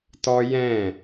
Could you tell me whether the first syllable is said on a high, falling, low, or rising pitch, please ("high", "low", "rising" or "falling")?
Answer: high